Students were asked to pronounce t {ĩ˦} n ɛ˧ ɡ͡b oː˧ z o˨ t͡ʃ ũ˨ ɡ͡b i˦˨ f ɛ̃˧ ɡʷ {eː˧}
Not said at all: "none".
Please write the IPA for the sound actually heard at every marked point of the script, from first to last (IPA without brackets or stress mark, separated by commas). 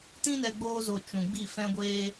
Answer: ĩ˦, eː˧